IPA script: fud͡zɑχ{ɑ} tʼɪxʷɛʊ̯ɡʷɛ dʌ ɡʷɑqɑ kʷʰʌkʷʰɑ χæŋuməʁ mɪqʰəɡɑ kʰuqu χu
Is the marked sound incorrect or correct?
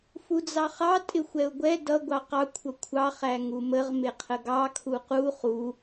correct